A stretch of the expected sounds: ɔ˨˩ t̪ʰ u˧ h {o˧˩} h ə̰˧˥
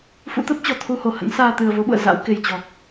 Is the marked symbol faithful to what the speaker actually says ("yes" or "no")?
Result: yes